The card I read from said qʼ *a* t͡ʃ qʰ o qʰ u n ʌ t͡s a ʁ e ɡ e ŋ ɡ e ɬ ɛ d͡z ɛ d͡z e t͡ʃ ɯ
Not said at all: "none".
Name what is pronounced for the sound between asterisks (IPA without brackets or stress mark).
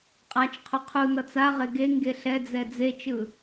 a